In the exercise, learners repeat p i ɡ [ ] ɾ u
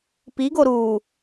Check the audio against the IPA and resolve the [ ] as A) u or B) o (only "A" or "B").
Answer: B